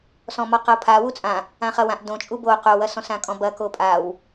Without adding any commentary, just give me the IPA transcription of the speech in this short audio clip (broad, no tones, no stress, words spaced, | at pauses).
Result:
sɔ̃mɔqʌo̯pʰa wut͡sʼã | ãχɐwãʔ dõt͡ʃʼu bo qowɐsɔ̃sã kʼɔ̃bɐ kopʼaw